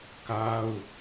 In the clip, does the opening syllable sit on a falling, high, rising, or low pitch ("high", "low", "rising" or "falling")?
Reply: high